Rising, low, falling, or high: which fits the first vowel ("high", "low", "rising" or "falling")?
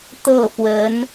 falling